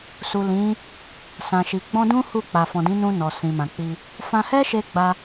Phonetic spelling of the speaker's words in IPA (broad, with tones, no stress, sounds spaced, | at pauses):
s u˨ l ĩ˨˦ | s ã˨ ʃ i˨ ɡ͡b ɔ̃˧ d ũ˦ h u˦˨ k͡p a˨ f ɔ̃˨ d ĩ˨˦ n ũ˧ n ɔ˨ s ĩ˨ m ã˨ k͡p i˧ | f ã˧ h ɛ˦ ʃ e˧ ɡ͡b a˧